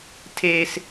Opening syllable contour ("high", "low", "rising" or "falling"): high